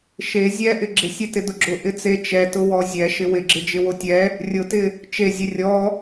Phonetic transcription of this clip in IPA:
ʃe zʲɛʔɪ ɡ͡ǁɪsʲɛtɪ dʊɡ͡ǁʊ ʔɪt͡se t͡ʃɛ tʊwɔzʲɛʃɪ wɪɡ͡ǁɪ d͡ʒɪwotʲɛ | rʲʊtɪ | t͡ʃezʲe rʲɔ

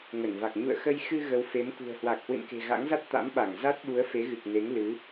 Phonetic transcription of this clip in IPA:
ŋə˧˩nva˨˩k̚ ɲṵ˧˨ə̯xə˧j xɨ˧ ɣə˨˦wfe˨˦mkṳ˨˩ə̯hwa˨˩k̚ hwɨ̰˧˨nke̤˨˩ɣa̰˧˥ŋza˦˥t̚ t̪a̰˧˥m ɓa˧˩ŋza˦˥t̚ ɓu˨˦ə̯fe˨˦ɣɨ˨˩k̚ne˨˦ŋ lɨ˨˦

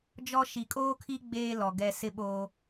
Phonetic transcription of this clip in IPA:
d͡ʒɔ˦ ʃi˨kʼoː˦kʰi˦ ɡ͡beː˦ lɔ˨ ɡɛ˦ sɪ˦ɓoː˦

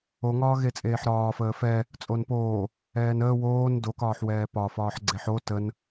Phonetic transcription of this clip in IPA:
oŋɒː ɣet͡sʼeːħɾɒːfəː fɛ | t͡sʼonpoː | ɛːnəː woːn dokɒːħwɛː pɒfɒːħ ɡ͡ǀeħo tən

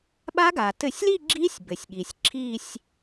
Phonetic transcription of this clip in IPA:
ɓa˦˥ɡa˩ tɘ˧˩˧sʲli˥˧ ɡ͡ǁi˦˥sʲbɘ˩sʲ ɠi˩sʲǁʰi˥˧sʲ

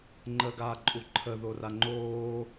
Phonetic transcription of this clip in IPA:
ŋ͡ǃəːɡaːǃʼuǃʰə ðoraŋ͡ǃoː

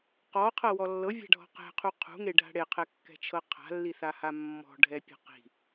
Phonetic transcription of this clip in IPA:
qɔqʰɤwɔ lːɤvʲa̤ɖʱɔ̤ qɛ̤qʰu qʰṳŋeɖʱa̤ ɽeqʰɛkːɛ̤t͡ʃʰɤ qʰa̤lːiθaha mːɔ̤ɖʱɛpʲɛ̤ qi̤

